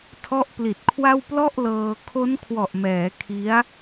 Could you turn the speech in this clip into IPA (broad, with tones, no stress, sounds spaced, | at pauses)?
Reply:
tʰ ɔ˦˥ ʔ p l i˨˩ t̚ kʰ w a˥˩ w p l ɔ˥˩ ʔ l ɤː˧ kʰ o˦˥ n kʰ w ɔ˨˩ ʔ m ɛː˩˦ kʰ i˦˥ a̯